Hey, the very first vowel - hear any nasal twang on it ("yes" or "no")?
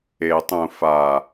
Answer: no